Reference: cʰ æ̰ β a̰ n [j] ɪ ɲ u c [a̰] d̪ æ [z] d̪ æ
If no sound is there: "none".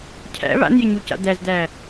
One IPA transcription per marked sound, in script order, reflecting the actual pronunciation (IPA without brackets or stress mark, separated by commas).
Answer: j, a̰, z